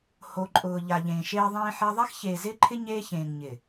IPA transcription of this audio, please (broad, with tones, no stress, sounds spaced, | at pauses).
h o˨ ǃʼ ʊː˨ ʎ a˨ ʎ ẽː˨ ʃ eː˦ ðˤ ẽː˦ ħ ɛ˦ ðˤ a˦ x ç eː˨ z ɪː˦ ǃʰ ɪ˦ ɲ eː˦ ç ẽː˨ ŋ ɲ ɪ˨